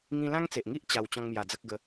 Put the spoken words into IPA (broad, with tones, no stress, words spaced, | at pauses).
ŋĩ˧lã˦ŋt͡se˨ʔŋi˦ʔ t͡ɕa˧w t͡ɕɔ̃˧ŋmja˨˩ d͡zə˦k̚ɡə˧